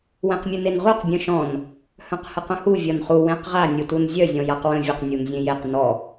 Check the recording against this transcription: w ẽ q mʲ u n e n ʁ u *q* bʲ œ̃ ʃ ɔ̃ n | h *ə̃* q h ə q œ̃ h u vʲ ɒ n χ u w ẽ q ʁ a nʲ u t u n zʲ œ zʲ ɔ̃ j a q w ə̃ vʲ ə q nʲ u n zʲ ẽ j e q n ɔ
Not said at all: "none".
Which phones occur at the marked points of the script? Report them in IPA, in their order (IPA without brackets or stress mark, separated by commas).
q, œ̃